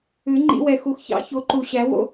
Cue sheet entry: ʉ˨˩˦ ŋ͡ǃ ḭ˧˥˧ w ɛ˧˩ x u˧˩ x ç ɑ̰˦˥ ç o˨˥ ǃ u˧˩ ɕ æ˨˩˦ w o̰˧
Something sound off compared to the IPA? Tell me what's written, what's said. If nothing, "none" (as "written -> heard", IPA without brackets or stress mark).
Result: none